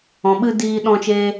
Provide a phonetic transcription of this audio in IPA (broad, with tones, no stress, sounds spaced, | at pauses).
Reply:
ɔ̃˧ ɓ ɨ˦ d iː˦ ɗ ɔ̃˦ t͡ʃ eː˦